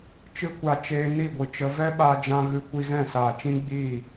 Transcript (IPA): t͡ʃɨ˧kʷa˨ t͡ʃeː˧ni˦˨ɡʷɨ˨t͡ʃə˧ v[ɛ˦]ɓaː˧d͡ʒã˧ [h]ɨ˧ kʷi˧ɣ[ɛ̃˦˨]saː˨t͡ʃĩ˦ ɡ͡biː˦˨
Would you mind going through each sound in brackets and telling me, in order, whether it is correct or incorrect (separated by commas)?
correct, incorrect, correct